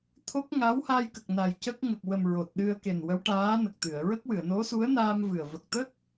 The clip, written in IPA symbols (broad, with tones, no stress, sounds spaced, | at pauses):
t̪ʰ o˦˥ k̚ ŋ a˧˥ w h a˧ j k ə˨˩ k̚ n a˨˩ j c ə˦˥ k̚ ŋ ə˨˩ k̚ w ə˨˩ m ɹ o˨˩ t̚ ɗ ɨ˧ ə̯ k e˨˩ n w ə˧˥ w ʈ aː˧˥ n ə˨˩ k̚ t̪ ɨ˨˩˨ ə̯ ɹ ə˦˥ k̚ w ɨ˨˩˨ ə̯ n o˧˥ s u˧˥ ə̯ n aː˧ m v ɨ˨˩ ə̯ v ə˨˩ k̚ t̪ ə˦˥ k̚